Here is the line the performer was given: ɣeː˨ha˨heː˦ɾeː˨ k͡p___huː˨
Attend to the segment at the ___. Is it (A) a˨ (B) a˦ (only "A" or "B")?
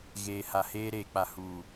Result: A